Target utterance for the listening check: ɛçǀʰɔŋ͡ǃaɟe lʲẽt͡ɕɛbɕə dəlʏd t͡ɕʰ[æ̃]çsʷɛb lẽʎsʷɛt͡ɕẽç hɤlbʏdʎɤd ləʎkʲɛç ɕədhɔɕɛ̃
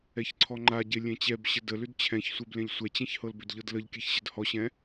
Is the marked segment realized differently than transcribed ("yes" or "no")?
yes